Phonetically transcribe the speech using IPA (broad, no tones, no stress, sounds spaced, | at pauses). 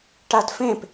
ʈ a d f ẽ p